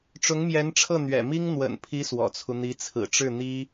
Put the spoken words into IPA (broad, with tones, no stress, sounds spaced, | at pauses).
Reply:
ʈ͡ʂ ʊ˧˥ ŋ m j ɛ˧˥ n ʈ͡ʂʰ ɤ˥˩ n̪ ɥ ɛ̰˨˩ m i˥ ŋ n̪ w ə̰˨˩ n pʰ i˧˥ s w ɔ̰˨˩ t͡sʰ u˦ n̪ i˧˥ t͡sʰ ɹ̩˨˩ ʈ͡ʂ ɻ̩˥˩ n̪ i˥